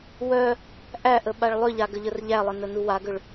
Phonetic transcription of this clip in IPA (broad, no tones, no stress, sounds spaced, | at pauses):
w œ | ʔ æ ʔ ə ɓ a ɭ lˠ ʏ ʎ a ɡ ə ʎ ə r ʎ æ lˠ ə n ə n u w a ɡ ʏ ɭ